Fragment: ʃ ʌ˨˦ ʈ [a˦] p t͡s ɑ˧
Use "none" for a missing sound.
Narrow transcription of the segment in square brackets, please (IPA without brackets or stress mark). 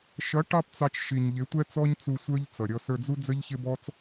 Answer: ɑ˦